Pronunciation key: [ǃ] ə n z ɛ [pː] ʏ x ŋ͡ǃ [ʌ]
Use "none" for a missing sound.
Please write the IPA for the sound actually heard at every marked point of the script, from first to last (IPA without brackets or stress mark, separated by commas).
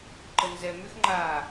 ǃ, m, a